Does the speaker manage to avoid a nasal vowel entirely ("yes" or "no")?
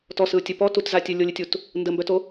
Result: yes